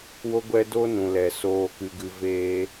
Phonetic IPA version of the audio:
w o˦ ɡʷ ɛ˦ d o˦ n ũ˨ l ɛ˨ s oː˧ k ɨ˧ ɡ ɨ˧ v eː˦

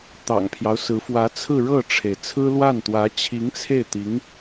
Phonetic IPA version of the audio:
t̪ ɑ̰˨˩ ŋ pʰ j ɑ˦ ʊ̯ s ɹ̩˧˥ f w ä˧˥ t͡sʰ ɹ̩˥˧ ɻ ɤ˥˩ ʈ͡ʂʰ e˩ ɪ̯ t͡sʰ ɹ̩˥ l w a˥˩ n t̪ w ä˧˥ t͡ɕʰ i˧˥ ŋ t͡sʰ e˥˩ ɪ̯ t̪ i˧˥ ŋ

